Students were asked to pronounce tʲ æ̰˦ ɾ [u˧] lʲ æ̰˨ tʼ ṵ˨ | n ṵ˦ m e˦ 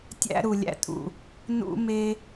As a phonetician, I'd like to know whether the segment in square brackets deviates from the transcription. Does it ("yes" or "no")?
yes